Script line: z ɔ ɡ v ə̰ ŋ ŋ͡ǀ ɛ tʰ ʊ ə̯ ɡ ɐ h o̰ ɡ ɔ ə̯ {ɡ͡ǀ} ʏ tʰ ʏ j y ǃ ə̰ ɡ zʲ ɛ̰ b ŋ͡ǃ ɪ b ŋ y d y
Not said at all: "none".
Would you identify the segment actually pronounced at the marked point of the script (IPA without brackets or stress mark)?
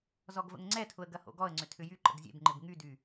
ŋ͡ǀ